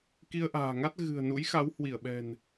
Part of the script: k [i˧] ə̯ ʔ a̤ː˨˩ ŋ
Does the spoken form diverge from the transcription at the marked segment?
no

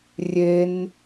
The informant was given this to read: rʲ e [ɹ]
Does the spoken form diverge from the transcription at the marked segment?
yes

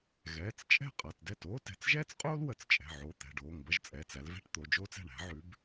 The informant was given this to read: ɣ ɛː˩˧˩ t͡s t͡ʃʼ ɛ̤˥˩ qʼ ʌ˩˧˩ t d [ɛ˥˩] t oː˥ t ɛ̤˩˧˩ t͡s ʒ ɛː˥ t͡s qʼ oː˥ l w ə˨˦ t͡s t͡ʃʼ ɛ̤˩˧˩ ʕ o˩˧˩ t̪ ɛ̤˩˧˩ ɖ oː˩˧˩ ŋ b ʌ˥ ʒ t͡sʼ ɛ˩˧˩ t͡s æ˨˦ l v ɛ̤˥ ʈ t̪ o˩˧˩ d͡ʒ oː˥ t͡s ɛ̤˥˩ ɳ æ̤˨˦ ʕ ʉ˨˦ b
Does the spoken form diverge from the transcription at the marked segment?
no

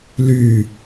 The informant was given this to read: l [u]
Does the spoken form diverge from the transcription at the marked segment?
yes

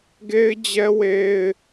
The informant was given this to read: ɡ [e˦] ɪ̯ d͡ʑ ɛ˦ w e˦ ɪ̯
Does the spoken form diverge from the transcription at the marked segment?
no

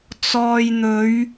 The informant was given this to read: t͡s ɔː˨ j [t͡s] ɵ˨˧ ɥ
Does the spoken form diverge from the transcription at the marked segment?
yes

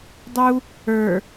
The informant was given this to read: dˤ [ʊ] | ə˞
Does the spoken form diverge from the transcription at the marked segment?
yes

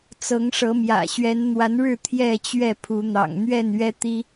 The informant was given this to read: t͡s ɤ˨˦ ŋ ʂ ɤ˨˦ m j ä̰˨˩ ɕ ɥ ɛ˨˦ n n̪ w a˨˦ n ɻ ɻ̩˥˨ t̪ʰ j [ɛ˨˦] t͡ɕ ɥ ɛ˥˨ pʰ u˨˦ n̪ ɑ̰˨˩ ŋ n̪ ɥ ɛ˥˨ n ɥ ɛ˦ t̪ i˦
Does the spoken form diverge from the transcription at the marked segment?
yes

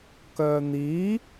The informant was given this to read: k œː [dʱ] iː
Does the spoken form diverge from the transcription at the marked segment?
yes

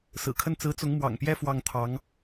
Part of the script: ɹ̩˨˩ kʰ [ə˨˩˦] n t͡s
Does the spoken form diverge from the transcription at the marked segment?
yes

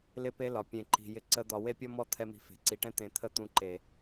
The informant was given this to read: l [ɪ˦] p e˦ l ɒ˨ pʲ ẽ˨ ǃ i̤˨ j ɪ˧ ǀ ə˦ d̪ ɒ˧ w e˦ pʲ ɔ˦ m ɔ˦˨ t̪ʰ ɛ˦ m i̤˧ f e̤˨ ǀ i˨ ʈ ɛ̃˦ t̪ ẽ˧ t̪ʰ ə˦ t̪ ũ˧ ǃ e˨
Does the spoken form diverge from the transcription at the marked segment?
no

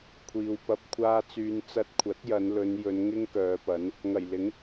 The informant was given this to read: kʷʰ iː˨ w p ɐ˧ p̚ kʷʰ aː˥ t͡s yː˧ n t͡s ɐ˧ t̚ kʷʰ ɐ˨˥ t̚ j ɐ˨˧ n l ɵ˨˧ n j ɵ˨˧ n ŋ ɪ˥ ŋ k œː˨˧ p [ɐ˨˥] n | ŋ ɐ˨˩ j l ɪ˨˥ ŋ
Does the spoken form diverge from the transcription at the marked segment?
no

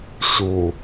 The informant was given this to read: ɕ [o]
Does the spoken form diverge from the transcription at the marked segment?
yes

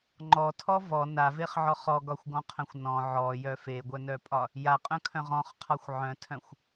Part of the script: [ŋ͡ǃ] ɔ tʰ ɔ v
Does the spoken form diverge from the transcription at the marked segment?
no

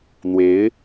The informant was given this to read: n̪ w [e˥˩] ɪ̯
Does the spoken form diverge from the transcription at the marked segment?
yes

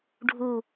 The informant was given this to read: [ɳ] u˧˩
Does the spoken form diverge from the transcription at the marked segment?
yes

